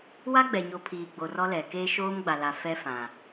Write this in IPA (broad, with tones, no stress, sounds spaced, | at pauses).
w a˦ ɡ͡b ɛ˨ ɲ o˨ pʰ iː˨ ɡ͡b o˨ r ɔ˦ l ɛ˨ k eː˦ ʃ oː˦ m ɡ͡b a˨ l a˨ f ɛ˦ f ã˨